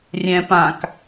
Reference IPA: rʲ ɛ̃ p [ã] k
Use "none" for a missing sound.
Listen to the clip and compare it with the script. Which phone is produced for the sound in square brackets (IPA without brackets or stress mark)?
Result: ã